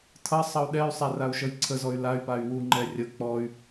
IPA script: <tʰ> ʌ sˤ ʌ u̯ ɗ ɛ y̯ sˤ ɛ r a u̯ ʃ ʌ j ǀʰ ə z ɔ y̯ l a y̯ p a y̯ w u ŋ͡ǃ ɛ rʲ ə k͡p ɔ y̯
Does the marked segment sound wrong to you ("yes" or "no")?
no